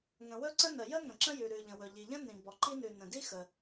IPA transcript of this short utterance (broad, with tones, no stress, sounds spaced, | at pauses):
ŋ ə̃˩ w ɵ˥ ǀ ə̃˥ n ə˩ j ə˥ ŋ ə̃˩ ǁ ə̃˥ j ʉ˩ ɾ ʉ˩ ʎ ə̃˩ w ɵ˩ ʎ i˩ ʎ ə̃˥ n ĩ˩ b ɔ˩ ǃ i˥ n ʉ˩ n ə̃˩ d i˥ x ə˩